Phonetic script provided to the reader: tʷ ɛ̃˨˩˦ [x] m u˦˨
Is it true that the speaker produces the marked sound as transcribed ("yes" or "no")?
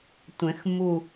yes